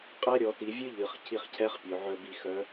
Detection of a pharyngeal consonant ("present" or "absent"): present